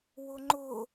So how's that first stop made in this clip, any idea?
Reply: click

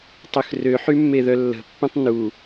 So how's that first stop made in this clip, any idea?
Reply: plain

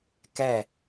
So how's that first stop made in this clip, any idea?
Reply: plain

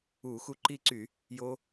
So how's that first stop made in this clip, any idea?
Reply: click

